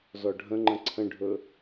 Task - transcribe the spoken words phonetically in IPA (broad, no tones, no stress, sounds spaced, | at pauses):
z ɔ ɖʱ ə̃ ŋ͡ǃ ə̃ ǀʰ ə̃ ɖʱ ɵ